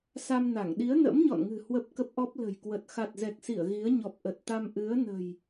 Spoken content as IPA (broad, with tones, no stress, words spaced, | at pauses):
sa˧mna˧˩ŋ ɗi˨˦ə̯nə̰˧˥mɲɔ̰˧˨nŋɨ̤˨˩ hwə˦˥p̚kə˦˥p̚ʔɔ˦˥p̚ lə̤˨˩jkwə˨˩t̚ xa˨˩t̚zɛ˨˩k̚si˧˩ə̯ ɣi˨˦ə̯ɲɔ˨˩p̚ ʔə˨˩t̚t̪a˧m ʔɨ˨˦ə̯nə̤˨˩j